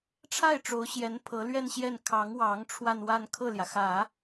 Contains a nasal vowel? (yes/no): no